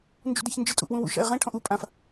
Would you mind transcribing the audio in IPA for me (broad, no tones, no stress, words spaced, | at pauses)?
nd͡ʒṵdɛçnd͡ʒɨ tʼṵʔwũwṵ ʃa̰ɪ̯ʁɛ̃ ʈʰɔ̃ʔu pʼãf